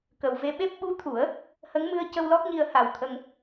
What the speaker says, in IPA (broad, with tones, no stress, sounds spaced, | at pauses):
k ə˨˩ w v e˧ ɓ e˦˥ p̚ ɓ u˧˥ t̪ʰ u˨˩˦ ə̯ | h ə˧˥ ŋ m ɨ˧ ə̯ c ə˧ w l ɔ˦˥ k̚ ɲ i˧ ə̯ h a˨˩ w t̪ʰ ə˧ ŋ